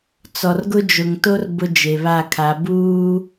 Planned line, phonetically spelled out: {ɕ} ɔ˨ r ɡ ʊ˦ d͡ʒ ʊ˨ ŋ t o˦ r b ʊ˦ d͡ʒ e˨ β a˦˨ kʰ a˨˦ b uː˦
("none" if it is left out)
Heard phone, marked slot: t͡s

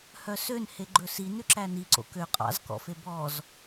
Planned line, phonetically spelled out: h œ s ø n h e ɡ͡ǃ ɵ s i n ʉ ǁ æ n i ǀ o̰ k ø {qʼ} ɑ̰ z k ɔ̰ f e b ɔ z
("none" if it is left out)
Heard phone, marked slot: qʼ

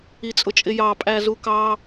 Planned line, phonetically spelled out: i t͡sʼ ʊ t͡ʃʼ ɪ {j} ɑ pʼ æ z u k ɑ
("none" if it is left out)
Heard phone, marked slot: j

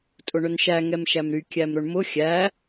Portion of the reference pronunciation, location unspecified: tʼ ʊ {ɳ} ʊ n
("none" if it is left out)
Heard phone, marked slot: ɳ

